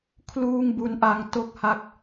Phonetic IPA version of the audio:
kʰ l uː˥˩ ŋ b u˦˥ n ʔ a˧ ŋ t o˥˩ k̚ h a˥˩ k̚

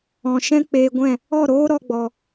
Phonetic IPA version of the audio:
ɔ̃˨ ʃ ɛ̃˦ k͡p eː˧ ɡʷ ɛ̃˦˨ | ɔ˦˨ ɾ oː˦ ɾ ɔ˦ ɡ͡b ɔ˧

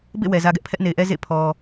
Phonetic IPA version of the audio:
b ḛ˦˨ w ɛ˨ z ä˦ ɡ ɛ˦ ʔ pʰ ɛ˦ ʔ n e˨ ɪ̯ ʔ ɛ˦ z ḛ˦˨ pʰ ɔ˨

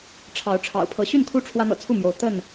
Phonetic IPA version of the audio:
ʈ͡ʂʰ ɑ˨˦ ʊ̯ ʈ͡ʂʰ ɑ̰˨˩ ʊ̯ pʰ ɤ˨˦ ɕ y˥˨ n kʰ u˦ ʈ͡ʂʰ w ä˦ n̪ ɤ̰˨˩ t͡sʰ u˥˨ m j o˨˦ ʊ̯ t̪ ə˥˨ n

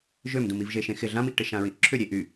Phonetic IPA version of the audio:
ʒ ø m d ũ m i v ʒ e ʃ ẽ x ɪ ɮ ã m i ʔ ʈ ɪ ʃ ã ɹ ĩ ʔ ǁʰ ʏ ɾʲ e ʔ y

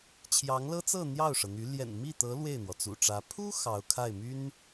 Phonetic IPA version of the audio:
t͡ɕʰ j ɑ˧˥ ŋ l ɤ˥ t͡s ɤ˥˧ n̪ j ɑ˥˩ ʊ̯ ʂ ɤ˩ n̪ y˧˥ l j ɛ̰˨˩ n m i˥˩ t̪ ɤ˧˥ l w e˥˩ ɪ̯ n̪ w ɔ˩ t͡s ṵ˨˩ ʈ͡ʂ ä˧˥ pʰ u˥ x ɑ˧˥ ʊ̯ kʰ a˥˩ ɪ̯ m y˥ n

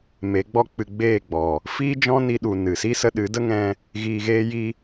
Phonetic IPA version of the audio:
m e˨˦ ɡ͡b ɔ˦ k͡p ɨ˧ ɡ͡b eː˦˨ ɡ͡b ɔ˨ | f iː˦ d͡ʒ ɔ̃˦ n i˧ ɗ u˨ n ɨ˨ s i˦ s ə˧ ɗ ɨ˨˦ d ə˦ ŋ ɛ̃˧ | ɣ iː˧ ɣ eː˦ j i˦

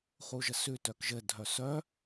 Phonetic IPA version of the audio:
χ u ʒ ə s ʉ t œ k ʒ ɘ dʱ œ s œ

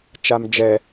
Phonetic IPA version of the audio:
t͡ʃ a m d͡ʒ ɛ

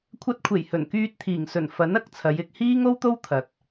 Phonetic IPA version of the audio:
kʷʰ ɐ˧ t̚ kʷʰ e˨˩ j h ɵ˨˩ n k yː˧ t̚ t̪ʰ iː˨˩ ŋ s ɵ˨˩ n f ɐ˨˥ n ɐ˧ k̚ t͡sʰ ɐ˨˧ j ɪ˧ k̚ h iː˥ ŋ o˥ w t̪ o˥ w t̪ʰ ɐ˨ t̚

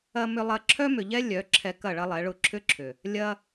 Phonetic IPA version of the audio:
ɐ˧ m ʏ˧ lˠ ɐ˧ ǁʰ œ˦ m ʏ˨ ʎ ɛ˦ lʲ œ˨˦ ǁʰ ɛ˧ k ɐ˦˨ ɭ ɐ˦ lˠ ɛ˨˦ ɭ ʊ˦˨ ǁʰ ʏ˦ ǁʰ ʏ˨ | lʲ ɐ˧

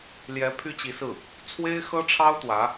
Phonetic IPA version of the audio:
l j ɛ˧˥ pʰ y˥ t͡ɕ i˧˥ s ɹ̩˥˩ | t͡sʰ w e˥ ɪ̯ x ɤ˥ ʈ͡ʂʰ ɑ˥ ʊ̯ t̪ w ä˧˥

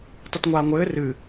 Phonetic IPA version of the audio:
tˤ ɨ t ŋʷ aː ŋʷ ɘː r ɨ

